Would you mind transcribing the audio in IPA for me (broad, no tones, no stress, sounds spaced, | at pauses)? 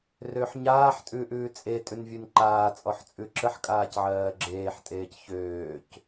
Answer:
r ø ħ ɲ aː ħ tʼ ʉː ʔ ʉː t͡sʼ e tʼ ʉ n vʲ ʉ n ǃ aː t͡sʼ ɔ ħ t͡sʼ ʉ ǁ ə ħ kʼ aː c ʕ ɜː ɡ͡ǁ eː ħ tʼ eː c ç øː c